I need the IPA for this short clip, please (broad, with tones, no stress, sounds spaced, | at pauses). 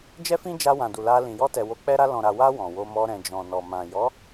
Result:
d͡ʒ ɛ˦ f ĩ˦ d͡ʒ a˧ w ã˨ d u˨ l a˧ l ĩ˨ j ɔ˧ t ɛ˨ w o˨˦ k͡p ɛ˧ ɾ a˧ l ɔ̃˨ ɾ a˨ w a˧ w ɔ̃˨ w o˧ m ɔ˧ ɾ ɛ̃˨ d͡ʒ ɔ̃˨ n ɔ˨ m ã˨ j ɔ˨˦